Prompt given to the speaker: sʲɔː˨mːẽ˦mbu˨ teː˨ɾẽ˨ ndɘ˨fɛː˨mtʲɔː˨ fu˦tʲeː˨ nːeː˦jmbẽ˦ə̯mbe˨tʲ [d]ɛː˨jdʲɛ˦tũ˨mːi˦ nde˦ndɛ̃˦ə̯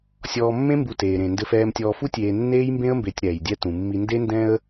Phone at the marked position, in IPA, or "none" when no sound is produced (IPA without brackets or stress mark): ɾ